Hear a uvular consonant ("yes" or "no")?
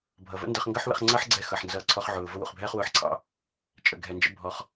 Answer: yes